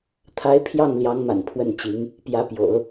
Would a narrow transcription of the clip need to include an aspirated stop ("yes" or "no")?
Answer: yes